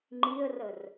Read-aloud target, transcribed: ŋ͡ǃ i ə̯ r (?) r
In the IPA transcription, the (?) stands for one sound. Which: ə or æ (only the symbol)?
ə